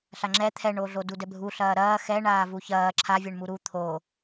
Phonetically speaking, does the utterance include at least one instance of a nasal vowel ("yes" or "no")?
no